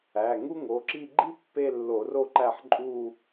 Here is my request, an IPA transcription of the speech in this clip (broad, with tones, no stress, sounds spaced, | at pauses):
æ˩˧˩ ŋ u˥ ŋ o˩˧˩ ǁ i˥˧ ɡ͡ǃ i˥ pː e˥˧ lː o˧˩˧ r o˥˩ ǃ æ˥˩ ħ ǃʼ u˥˧